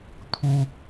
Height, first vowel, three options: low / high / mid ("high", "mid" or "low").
high